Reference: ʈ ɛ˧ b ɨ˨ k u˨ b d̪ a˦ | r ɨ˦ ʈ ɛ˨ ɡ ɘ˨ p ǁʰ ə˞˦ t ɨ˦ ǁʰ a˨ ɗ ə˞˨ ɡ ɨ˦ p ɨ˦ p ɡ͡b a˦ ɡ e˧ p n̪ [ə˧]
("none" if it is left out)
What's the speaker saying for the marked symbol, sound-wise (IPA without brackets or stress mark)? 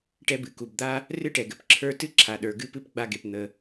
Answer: ə˧